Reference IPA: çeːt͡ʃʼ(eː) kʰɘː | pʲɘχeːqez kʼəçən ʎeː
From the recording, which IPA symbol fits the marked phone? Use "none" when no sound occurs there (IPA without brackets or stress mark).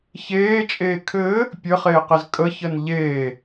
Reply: eː